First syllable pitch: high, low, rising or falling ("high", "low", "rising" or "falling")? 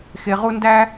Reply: low